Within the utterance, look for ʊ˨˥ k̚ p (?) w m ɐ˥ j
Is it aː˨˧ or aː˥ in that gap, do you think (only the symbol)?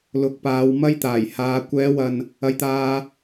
aː˨˧